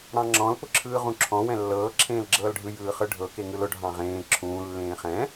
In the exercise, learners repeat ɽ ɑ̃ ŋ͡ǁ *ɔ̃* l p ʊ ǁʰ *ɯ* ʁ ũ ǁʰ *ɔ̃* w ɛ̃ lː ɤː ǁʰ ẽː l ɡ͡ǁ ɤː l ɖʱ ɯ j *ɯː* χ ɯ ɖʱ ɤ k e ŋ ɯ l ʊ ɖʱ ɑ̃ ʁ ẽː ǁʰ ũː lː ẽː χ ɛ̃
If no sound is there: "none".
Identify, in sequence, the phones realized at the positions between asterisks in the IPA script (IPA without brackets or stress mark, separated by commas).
ɔ̃, ɯː, ɔ̃, ɯː